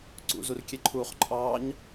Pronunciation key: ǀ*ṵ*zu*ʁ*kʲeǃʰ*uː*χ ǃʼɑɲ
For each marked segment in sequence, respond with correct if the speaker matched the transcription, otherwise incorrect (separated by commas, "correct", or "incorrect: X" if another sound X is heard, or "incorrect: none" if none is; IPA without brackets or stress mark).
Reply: correct, incorrect: r, correct